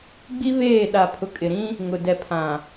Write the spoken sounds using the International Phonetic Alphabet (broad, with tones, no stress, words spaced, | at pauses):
ɡ͡bi˦βeː˦˨ ɗa˨pʰʊ˨kʼɪ˨ɾĩ˦ | ŋʊ˨dɛ˨pʰã˨